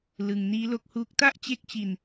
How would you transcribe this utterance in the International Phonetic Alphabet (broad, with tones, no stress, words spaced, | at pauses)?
lɯ˧ŋ niː˦˥lo˦˥k̚huː˦˥k̚ ta˥˩ʔt͡ɕe˦˥k̚t͡ɕi˧n